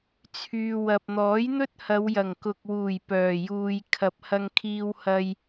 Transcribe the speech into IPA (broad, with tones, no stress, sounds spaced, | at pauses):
t͡sʰ yː˨ w ɐ˨ p̚ n̪ ɔː˨˥ j n̪ ɵ˥ t̚ h ɐ˨˧ w j ɐ˨˩ ŋ k ʊ˨ k̚ w uː˨˩ j p œː˨˩ j uː˨ j kʰ ɐ˨˥ p̚ h ɐ˧ ŋ kʰ iː˧ w h ɐ˧ j